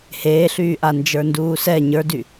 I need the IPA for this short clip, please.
h eː ɬ yː ʔ a n d͡ʒ ə˞ n d uː s ɛ ɲ ə˞ d y

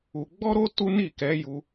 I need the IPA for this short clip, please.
u˧ ɡ͡b ɔ˦ ɾ o˦ t u˦ n i˦˨ k ɛ˨˦ j u˧

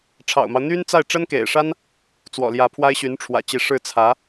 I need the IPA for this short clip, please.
ʈ͡ʂʰ ɑ̰˨˩ ʊ̯ m ɑ˦ ʊ̯ n̪ y˥ n t͡s a˥˩ ɪ̯ ʈ͡ʂ ə˥ n k ḛ˨˩ ɪ̯ ʂ a˥ n | t͡s w ɔ̰˨˩ l j ä˧˥ pʰ w a˥ ɪ̯ ɕ y˧˥ n ʈ͡ʂʰ w ä̰˨˩ t͡ɕ i˧˥ ʂ ɻ̩˥˩ t͡sʰ ä˧˥

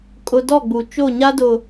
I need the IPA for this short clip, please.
kʼ ʊ˦ d ɔ˦˨ ɡ͡b u˨ t͡ʃ o˦˨ ɲ a˦ d ʊ˨

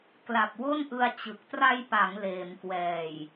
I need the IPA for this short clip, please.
k l a˨˩ p̚ w o˥˩ n ʔ ɯ˧ a̯ t͡ɕ ɯ˨˩ k̚ t r a˧ j p a˩˦ ŋ l eː˩˦ m k w ɛː˨˩ j

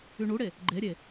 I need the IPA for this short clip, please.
y ɳ u ɽ e | ɡ͡ǃ e ɾʲ e

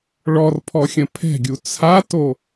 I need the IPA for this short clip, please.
ɭ ɔ r pʰ ɔ xʲ ə̃ pʰ ɛ̤ ɡʲ u t͡sʰ a t o

